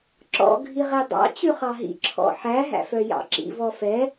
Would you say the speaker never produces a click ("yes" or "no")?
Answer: no